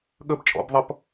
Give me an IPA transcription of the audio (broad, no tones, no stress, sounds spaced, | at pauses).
ɠ ə b t͡ʃʼ ɔ̰ b ðˤ ʌ p